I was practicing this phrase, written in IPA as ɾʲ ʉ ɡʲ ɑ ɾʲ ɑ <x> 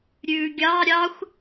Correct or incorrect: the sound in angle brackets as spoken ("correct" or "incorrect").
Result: incorrect